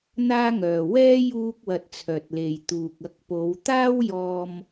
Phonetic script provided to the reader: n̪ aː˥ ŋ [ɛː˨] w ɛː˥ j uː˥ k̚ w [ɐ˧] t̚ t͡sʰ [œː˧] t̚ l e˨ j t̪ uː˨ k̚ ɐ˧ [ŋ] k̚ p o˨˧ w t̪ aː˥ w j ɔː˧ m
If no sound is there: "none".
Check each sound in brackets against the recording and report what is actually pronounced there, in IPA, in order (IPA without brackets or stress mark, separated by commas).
œː˨, ɐ˧, œː˨, none